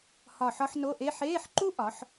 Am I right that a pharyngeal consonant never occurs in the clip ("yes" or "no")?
no